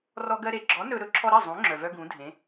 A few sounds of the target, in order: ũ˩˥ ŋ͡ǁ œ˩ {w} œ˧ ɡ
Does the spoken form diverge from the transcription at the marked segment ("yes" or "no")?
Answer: yes